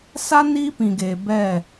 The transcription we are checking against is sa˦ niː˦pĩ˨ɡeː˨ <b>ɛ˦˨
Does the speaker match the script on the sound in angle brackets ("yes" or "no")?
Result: yes